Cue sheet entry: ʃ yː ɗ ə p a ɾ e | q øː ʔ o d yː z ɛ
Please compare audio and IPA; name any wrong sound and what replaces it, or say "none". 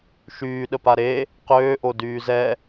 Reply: none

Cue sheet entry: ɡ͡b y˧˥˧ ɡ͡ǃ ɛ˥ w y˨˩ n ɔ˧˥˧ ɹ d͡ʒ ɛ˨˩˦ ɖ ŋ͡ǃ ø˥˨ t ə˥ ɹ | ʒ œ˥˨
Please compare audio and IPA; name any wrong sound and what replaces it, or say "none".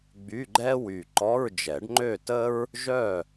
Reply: n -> ǃ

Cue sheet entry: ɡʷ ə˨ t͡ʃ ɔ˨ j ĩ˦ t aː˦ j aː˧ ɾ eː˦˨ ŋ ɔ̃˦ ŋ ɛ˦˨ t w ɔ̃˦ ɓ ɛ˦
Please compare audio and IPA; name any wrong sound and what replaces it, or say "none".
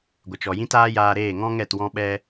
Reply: none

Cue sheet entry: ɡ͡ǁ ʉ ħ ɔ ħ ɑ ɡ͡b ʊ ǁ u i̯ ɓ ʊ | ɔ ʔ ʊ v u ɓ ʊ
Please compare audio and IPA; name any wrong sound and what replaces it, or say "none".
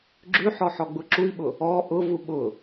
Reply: ɑ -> ɔ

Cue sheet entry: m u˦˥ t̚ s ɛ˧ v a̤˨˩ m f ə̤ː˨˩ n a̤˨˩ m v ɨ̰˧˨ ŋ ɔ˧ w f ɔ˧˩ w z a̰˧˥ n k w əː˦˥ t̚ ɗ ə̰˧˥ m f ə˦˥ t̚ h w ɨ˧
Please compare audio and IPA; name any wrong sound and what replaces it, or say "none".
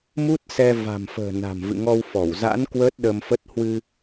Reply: ə̰˧˥ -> ə˧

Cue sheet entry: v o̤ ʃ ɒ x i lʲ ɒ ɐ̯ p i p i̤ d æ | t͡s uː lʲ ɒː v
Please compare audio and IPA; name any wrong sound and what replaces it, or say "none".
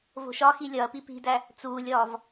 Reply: none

